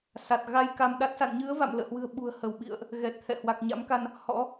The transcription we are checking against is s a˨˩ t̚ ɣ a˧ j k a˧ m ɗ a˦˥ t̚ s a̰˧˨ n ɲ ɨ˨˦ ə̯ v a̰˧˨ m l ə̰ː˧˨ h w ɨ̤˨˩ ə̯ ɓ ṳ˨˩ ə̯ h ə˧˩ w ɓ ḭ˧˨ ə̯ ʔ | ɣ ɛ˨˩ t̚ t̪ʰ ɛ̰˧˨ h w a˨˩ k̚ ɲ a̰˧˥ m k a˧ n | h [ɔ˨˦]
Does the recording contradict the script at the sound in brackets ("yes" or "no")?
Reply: yes